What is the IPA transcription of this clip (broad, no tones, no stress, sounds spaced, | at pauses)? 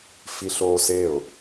f i ɬ oː s e ʊ̯